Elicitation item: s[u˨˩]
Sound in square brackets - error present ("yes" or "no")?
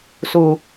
no